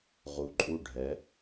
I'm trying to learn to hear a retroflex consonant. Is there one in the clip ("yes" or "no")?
yes